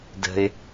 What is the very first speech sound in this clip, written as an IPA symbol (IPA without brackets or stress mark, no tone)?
d